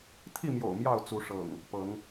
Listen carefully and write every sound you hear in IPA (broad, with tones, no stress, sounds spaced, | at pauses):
t̪ʰ i˥˨ m j o̰˨˩ ʊ̯ m j ɑ˥˨ ʊ̯ t͡s u˨˦ ʂ ɤ̰˨˩ ŋ | p ɤ˨˦ ŋ